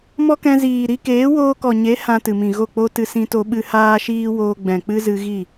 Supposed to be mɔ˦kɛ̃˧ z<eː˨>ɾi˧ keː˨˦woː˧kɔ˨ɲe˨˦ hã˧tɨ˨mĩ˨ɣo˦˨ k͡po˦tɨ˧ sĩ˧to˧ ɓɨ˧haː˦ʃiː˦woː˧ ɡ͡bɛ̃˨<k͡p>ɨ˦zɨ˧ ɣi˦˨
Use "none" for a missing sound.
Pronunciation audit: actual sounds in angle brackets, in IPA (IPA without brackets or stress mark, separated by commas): iː˨, k͡p